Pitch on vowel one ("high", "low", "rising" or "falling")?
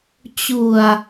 low